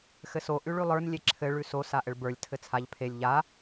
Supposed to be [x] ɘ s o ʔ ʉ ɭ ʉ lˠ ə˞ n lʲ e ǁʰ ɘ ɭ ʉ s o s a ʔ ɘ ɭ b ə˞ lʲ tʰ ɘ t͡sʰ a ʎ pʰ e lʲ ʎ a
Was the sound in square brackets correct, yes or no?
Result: yes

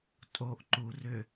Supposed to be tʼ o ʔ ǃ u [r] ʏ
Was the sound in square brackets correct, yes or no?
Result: yes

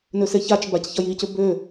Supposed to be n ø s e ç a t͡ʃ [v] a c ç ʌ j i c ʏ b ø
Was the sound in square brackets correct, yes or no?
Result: no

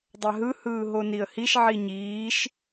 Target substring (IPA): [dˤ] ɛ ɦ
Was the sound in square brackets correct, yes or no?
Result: yes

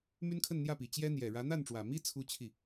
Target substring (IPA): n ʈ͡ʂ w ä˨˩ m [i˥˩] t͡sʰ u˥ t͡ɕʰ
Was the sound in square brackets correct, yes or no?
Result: no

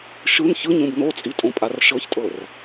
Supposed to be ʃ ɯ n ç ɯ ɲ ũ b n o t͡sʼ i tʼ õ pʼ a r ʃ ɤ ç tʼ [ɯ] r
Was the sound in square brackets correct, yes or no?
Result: no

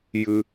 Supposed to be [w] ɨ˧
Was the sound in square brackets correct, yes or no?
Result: no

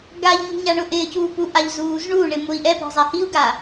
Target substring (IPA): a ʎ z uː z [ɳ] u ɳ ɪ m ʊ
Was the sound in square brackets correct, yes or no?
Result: yes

